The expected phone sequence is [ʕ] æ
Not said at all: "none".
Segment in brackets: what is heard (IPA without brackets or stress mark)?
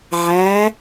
ʕ